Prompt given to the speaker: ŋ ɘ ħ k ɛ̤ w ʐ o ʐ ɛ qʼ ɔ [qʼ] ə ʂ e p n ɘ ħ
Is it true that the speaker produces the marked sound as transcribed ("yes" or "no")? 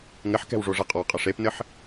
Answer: yes